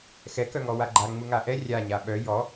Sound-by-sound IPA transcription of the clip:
x ɛ k œ ŋ ɔ w a ɡ͡ǃ a ŋ͡m u ŋ a ʔ ɛ rʲ a ɲ a ɓ œ j ɔ

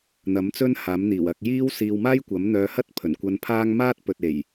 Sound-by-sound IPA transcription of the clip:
n̪ ɐ˨˥ m t͡s ɵ˥ n h aː˨˥ m n̪ iː˨˩ w ɐ˧ k̚ j iː˥ w s iː˧ w m aː˥ j kʷ ɐ˨˥ m n̪ œː˧ h ɐ˥ t̚ pʰ ɵ˨˩ n kʷ ɐ˧ n pʰ aː˥ ŋ m aː˥ t̚ p ɵ˨ t̚ e˨˩ j

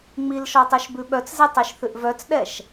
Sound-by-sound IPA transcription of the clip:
ŋ͡m i l ʃ ɔ tˤ ʉ ʃ b ʉ ɓ œ t͡s z ɛ tˤ i ʃ θ ʉ ʔ v œ t͡s ɗ ɛ ʃ

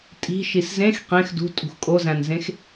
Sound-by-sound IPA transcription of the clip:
tʼ i̤ ʃ i s z ẽ x q ẽ x d ṳ tʼ ṳ x kʼ o z æ̃ n z ẽ x

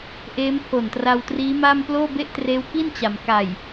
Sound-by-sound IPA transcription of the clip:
ʔ eː˦˥ m pʰ o˨˩ n t r a˧ w t r iː˦˥ m a˥˩ m p l oː˥˩ b e˥˩ ʔ t r eː˦˥ w k i˥˩ n t͡ɕ a˩˦ m k a˨˩ j

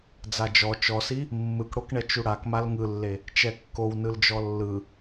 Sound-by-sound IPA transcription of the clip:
d͡z a d͡ʒ ɔ t͡ʃ ɔ s i | mː ɯ k ɽ o k ɳ ɛ t͡ʃ u ɽ a k m a l ŋ ɯ lː e | t͡ʃ ɛ kː o w n ɯ l d͡ʒ ɔ lː ɯ

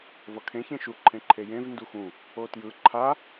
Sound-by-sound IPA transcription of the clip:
v ʌ kʰ ẽ ç ẽ ʃ u ǃʰ ẽ ǃʰ e j ẽ v n d u x ũ | o t j ɯ ǃʰ a

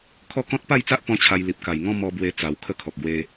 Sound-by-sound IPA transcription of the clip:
kʰ ɔ˦ k ɔ̃˦ t̚ p a˥˧ j t͡s a˦ ʔ p ɔ̃˦ t͡ɕʰ a˧ j l i˨ p̚ k a˨˩ j ŋ ɔ̃˦ m ɔ˧ b w e˧ t͡s a˧ w kʰ ə˥˧ kʰ ɔ˨ k̚ ɡ w e˦

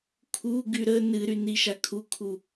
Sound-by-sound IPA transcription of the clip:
kʰ u ɡ y ɾ ə n ɨ ɾ y n i ʃ a kʰ u kʰ u

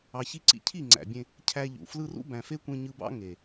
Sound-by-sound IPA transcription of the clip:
ɑ˨ ç i˧ ǀ ḭ˧ cʰ i˦˨ ŋ͡ǀ æ̰˨ bʲ ẽ˧ | cʰ æ˧ ʎ ṵ˨ f l ɯ˧ r ṵ˦ b æ̃˨ f e˦ kʷ ẽ˧ ɲ ɯ˧ b ɑ̰˦ ŋ e˨

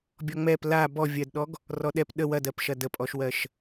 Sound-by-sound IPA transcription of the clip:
bʲ ɔ ŋ͡m ɛ p l a b ɔ vʲ ɜ d ɗ ɔ ɡ | r ɔ ɗ ɛ p ɗ ə w ɐ d ɜ p ʃ ɐ d ə pʼ ɔ ʃ w ɜ ʃ

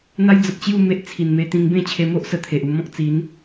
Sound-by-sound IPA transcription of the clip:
n̪ a˦ j d͡z ə˨ p̚ t͡ɕ j u˥˧ m e˦ ʔ t͡sʰ i˨˩ n m e˧ t̪ ĩ˧ ŋ b ẽ˥˧ t͡ɕʰ e˧ m o˦ ʔ s ə˧ t̪ʰ e˨ ʔ u˧ m ɔ̃˦ k̚ t͡s i˨˦ n

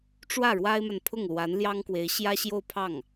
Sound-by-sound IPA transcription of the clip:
ʈ͡ʂ w ä˥˩ ɻ w a˥ ɪ̯ m a˨ n pʰ ʊ˥˩ ŋ l w a˧˥ n l j ɑ˥ ŋ k w e˧˥ ɪ̯ ɕ j ä˥ ɕ j o˥˧ ʊ̯ pʰ ɑ˥˩ ŋ

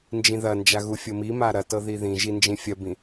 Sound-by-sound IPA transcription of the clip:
n d͡ʒ ĩ ð ɐ n d͡ʒ a ɣ u fʲ ɤ m i m a ɾ ɐ t ɤ ð i ð ĩ ʒ i n d͡ʒ ĩ fʲ ɐ b ĩ

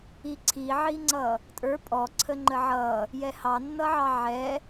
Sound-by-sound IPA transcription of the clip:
i ǀʰ i ʕ i ŋ͡ǀ ʌ | tʼ ə˞ pʼ ɔ ǀʰ ə ŋ͡ǃ ə ʕ ʌ | j ɛ h ɑ nː ʌ ʕ ɑ ʕ ɛ

